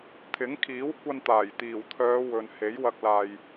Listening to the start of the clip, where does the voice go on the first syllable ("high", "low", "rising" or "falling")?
rising